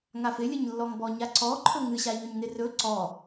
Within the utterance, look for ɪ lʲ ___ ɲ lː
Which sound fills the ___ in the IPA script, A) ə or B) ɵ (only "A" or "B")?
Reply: A